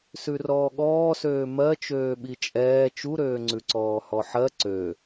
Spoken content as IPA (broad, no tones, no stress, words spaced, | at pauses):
sʉrɔːɠɔːsøː mɜt͡ʃøː ɓit͡ʃʼɛː t͡ʃuɾøːŋ͡ǀʉǀɔː hɔħɜ ǀø